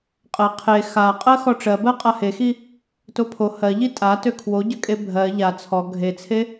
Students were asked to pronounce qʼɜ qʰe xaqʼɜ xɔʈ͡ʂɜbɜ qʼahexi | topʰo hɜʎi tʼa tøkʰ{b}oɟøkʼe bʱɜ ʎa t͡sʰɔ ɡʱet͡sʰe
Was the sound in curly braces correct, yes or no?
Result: no